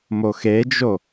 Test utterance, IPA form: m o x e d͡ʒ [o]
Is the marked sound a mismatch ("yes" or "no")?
no